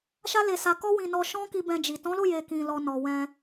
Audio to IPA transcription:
ʃa˦le˧sa˧ kɔ˦wĩ˧nɔ˧ ʃɔ̃˦ki˧ bɛ̃˧d͡ʒi˨ tɔ̃˨˦lo˦˨je˨ kĩ˨lɔ˨ nɔ˨wɛ̃˧

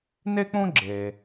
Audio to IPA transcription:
ne˥k͡põ˥ ɡ͡ǁe˩

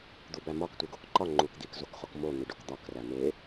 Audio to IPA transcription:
d̪ubæmɒk tʷeɡokǃɒ ŋ͡ǃukd̪ik zokχokmo n̪iɖokd̪ɒk ræme

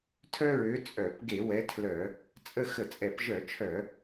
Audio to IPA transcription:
tʰœ˦ɹø˨˦ t͡sʼœ˧˩˧p ɡe˧˩˧wɛ˨˦tʰlœ˧˩˧ | t͡sʼə˦˨ xə˧˩˧t͡sʼɛ˧˩˧pʒœ˧˩˧t͡ʃʰœ˧˩˧

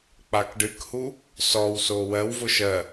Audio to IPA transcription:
k͡pakɖɨkhu | sɔwso wɜwvʊ ʃɜ

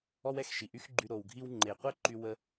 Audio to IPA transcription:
ɔ˥wɛ˩x ʃi˩ʔy˥xɡ͡ǃy˧ ɾo˩wɡʱi˧wŋ͡ǃe˩qʷɛ˥ ǃy˧ wə˧

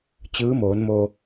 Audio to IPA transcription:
t͡ɕɯː˧˥moː˩˧nmo˧

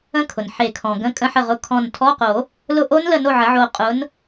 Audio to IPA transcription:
ə̃˦˥kʰʊ˩n ħe˨˩˦kʰɔ̃˩ ɡə̃˧˥˧kʼə̃˦˥ħə˦˨ ʁʊ˧˥˧ kʰɔ̃˦˨n tʰɔ˧˥˧qo˨˩˦ | lʊ˦˨ʔo˦˥nlə˦˨no˦˨ ʕə˨˥ʕo˦˨ qʼʊ˨˥n

